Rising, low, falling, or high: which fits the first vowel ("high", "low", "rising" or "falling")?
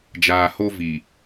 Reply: low